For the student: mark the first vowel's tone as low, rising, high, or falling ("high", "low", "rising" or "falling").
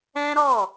high